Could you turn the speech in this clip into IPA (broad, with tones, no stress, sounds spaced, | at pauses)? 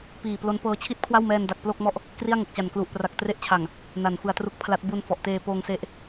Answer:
p iː˨˩ p l o˦˥ n p ɤː˧ t͡ɕʰ i˥˩ t̚ kʰ w a˥˩ w m ɛː˧ n d a˨˩ k̚ p l o˥˩ k̚ m ɔ˥˩ ʔ | k r i˥˩ a̯ ŋ o˨˩ k̚ t͡ɕ a˨˩ n k l u˨˩ ʔ p r a˨˩ k̚ t r e˦˥ ʔ t͡ɕʰ a˨˩ ŋ | n a˨˩ n f ɯ˨˩ a̯ t r u˦˥ k̚ pʰ l a˦˥ t̚ b u˧ n f ɔ˨˩ ʔ t eː˧ p oː˧ ŋ s e˦˥ ʔ